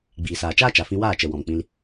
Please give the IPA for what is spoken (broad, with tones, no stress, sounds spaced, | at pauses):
ɡ͡b iː˨ s aː˨ t͡ʃ aː˦ t͡ʃ a˨ f ĩ˧ w aː˦˨ t͡ʃ ə˨ w ɔ̃˨ m k͡p ĩ˧ l